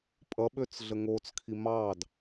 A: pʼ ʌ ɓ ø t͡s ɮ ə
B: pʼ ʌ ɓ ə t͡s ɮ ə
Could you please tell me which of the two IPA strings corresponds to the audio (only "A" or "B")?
A